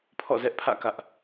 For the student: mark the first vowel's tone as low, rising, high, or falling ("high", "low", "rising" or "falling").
falling